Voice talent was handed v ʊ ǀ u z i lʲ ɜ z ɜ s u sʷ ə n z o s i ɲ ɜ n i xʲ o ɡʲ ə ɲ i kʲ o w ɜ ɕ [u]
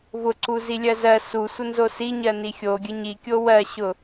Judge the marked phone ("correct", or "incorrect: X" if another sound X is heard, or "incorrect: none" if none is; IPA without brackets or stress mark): incorrect: ʊ